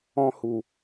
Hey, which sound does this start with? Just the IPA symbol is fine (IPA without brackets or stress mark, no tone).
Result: ɔ̃